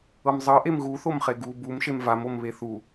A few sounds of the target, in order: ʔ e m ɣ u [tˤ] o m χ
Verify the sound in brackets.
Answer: incorrect: θ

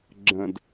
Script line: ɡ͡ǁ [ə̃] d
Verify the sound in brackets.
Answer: correct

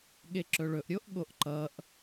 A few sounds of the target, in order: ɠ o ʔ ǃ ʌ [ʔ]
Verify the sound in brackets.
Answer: correct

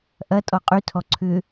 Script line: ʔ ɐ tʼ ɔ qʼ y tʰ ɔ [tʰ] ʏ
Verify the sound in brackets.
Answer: incorrect: ǀʰ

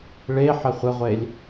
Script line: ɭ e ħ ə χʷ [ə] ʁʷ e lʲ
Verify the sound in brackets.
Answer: correct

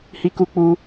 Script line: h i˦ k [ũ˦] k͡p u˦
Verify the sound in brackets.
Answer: incorrect: u˦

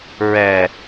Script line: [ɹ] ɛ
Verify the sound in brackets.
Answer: correct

